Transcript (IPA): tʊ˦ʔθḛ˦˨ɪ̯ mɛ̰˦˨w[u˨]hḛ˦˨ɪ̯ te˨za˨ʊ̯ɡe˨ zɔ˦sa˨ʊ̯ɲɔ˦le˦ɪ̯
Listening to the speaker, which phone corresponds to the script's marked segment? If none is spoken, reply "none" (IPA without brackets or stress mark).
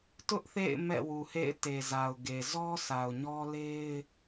u˨